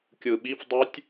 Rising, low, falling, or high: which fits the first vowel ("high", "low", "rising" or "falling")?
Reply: low